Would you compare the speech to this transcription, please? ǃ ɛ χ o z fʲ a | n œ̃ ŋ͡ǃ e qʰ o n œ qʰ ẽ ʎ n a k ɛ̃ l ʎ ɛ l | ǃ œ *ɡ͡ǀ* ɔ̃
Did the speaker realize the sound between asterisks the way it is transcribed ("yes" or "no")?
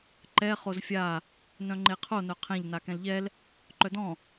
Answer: no